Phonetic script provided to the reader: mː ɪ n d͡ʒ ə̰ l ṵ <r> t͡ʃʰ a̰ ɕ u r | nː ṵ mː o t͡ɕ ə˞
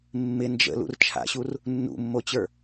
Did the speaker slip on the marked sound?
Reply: no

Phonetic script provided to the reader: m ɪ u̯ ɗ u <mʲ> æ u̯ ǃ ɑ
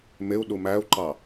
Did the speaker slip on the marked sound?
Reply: yes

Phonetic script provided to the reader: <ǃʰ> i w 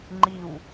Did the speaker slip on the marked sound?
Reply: yes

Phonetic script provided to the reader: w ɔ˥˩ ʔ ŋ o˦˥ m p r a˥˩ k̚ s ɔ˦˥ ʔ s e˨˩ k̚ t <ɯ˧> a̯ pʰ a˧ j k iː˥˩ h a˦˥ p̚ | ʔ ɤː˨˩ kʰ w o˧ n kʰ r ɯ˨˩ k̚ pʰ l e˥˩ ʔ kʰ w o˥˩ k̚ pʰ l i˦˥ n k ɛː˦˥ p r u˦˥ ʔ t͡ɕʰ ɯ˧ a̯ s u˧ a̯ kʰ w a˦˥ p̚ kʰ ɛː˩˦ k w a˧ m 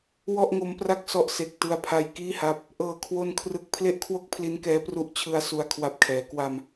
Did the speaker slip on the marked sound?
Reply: no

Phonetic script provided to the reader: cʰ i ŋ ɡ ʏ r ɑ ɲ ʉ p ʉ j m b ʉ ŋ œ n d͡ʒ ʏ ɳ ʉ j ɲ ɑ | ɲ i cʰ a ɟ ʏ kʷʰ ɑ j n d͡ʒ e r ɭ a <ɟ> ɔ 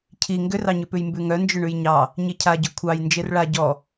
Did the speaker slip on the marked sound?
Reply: no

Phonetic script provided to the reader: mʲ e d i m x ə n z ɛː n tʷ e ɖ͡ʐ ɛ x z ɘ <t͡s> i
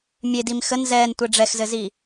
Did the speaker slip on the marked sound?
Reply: yes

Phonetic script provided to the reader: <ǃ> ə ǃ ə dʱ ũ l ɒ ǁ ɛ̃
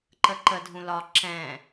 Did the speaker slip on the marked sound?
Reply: no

